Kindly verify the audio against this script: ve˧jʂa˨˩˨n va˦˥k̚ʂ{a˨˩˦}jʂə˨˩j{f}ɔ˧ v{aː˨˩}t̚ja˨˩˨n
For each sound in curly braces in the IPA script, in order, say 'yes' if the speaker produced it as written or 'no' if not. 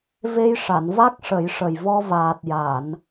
no, no, yes

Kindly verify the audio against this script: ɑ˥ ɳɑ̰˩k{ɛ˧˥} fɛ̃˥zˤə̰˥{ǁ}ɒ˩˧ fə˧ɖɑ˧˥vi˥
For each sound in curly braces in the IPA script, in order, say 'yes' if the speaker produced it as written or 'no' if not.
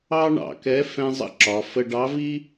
yes, yes

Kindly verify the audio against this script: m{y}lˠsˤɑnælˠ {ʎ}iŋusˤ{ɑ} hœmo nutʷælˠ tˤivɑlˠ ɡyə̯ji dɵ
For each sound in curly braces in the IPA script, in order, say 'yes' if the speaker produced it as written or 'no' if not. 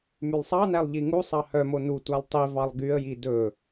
yes, yes, yes

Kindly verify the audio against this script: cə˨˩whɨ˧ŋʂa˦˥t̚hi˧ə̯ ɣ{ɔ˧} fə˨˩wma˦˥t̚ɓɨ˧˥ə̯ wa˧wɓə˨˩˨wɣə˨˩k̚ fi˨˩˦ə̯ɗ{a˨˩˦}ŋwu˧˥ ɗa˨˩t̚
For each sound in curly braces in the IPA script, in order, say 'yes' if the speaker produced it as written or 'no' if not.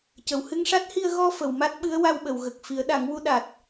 yes, yes

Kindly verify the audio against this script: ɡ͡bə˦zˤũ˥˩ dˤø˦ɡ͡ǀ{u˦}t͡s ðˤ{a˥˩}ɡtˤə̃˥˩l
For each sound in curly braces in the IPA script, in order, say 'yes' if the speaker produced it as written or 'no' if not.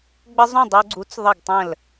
no, no

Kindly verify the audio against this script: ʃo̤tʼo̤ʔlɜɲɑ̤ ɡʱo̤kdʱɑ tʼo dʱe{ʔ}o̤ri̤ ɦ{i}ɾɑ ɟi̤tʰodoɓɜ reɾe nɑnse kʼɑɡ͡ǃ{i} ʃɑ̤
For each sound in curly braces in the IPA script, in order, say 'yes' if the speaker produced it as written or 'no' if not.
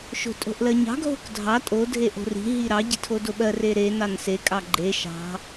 yes, yes, no

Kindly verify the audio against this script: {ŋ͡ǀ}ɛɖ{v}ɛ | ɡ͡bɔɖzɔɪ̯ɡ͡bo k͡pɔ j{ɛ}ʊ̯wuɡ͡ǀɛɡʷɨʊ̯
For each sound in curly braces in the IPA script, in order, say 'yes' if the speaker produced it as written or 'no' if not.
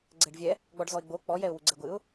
no, no, yes

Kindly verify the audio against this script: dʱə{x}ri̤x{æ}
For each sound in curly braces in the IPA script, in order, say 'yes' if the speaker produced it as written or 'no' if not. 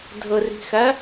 no, yes

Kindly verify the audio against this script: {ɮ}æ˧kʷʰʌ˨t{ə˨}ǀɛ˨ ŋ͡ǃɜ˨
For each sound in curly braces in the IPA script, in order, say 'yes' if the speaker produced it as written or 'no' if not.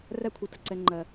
no, yes

